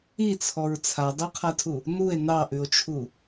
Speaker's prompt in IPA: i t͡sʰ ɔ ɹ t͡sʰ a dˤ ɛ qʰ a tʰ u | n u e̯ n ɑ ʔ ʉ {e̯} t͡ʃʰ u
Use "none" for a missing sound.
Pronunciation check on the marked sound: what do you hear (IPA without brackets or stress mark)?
o̯